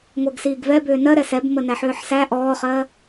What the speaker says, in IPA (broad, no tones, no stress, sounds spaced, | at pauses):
ŋʷ ɜ ɡ s iː ɡ v ɛ b ʏː n ɜ ɾ ɛ s ɛ b m ə n æ ħ ʏː ħ s æ ʔ ɔː χ ɜː